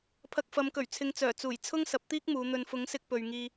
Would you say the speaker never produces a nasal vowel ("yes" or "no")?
yes